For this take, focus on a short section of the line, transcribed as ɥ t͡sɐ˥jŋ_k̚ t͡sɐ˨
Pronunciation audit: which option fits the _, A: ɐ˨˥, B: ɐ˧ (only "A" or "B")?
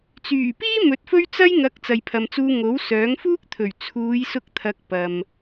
A